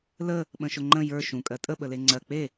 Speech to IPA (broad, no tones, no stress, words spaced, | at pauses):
lə | ɓə̃ʃʊŋ͡ǃə̃ jə˞ ʃũ kʼɜtʼə ɓəleŋ͡ǀɜ k͡pe